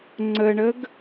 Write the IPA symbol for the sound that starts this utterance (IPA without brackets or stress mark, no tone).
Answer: ŋ͡ǀ